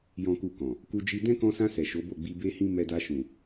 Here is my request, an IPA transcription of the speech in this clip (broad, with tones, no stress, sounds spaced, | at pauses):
j ɔ̃˦ k u˦˨ k ɔ̃˨ | k u˧ d͡ʒ i˧ d ɛ̃˦ k ɔ̃˧ s ã˧ s ɛ˨ ʃ o˨˦ b o˦˨ ɡ͡b i˧ b e˦ h ĩ˦ m ɛ˧ d a˧ ʃ ũ˨